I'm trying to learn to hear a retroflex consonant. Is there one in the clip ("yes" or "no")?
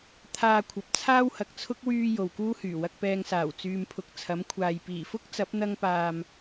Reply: no